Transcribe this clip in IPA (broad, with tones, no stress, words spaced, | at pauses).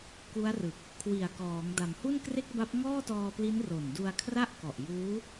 ku˦˥a̯rɯ˨˩k̚ | kʰwi˨˩a̯kɔː˩˦ŋ da˩˦mhu˥˩n kre˥˩k̚ba˦˥p̚ ŋɔː˥˩tɔː˧pli˦˥n ro˨˩ndu˧a̯kʰra˥˩ʔkɔ˨˩ʔ juː˦˥